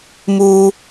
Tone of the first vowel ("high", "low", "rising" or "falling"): low